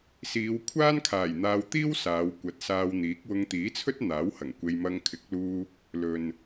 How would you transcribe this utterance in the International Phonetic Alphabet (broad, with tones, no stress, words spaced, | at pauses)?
siː˨˧w kʷʰaː˥nkʰaː˨˩j n̪aː˧wt̪iː˥w saː˨˧w kʷɐ˨˥t̚ saː˧wn̪iː˨˥k̚ wʊ˧ŋt̪iː˨˥t͡sʰɵ˥t̚ n̪aː˨˥whɐ˨˩ŋkʷe˧j mɐ˧ŋkʰɪ˨˥k̚luː˧ | lɵ˨n